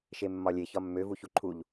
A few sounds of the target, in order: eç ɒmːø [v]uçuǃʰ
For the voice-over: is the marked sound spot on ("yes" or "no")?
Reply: yes